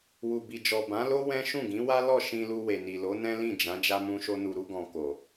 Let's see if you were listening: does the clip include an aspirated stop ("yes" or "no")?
no